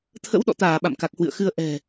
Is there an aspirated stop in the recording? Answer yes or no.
yes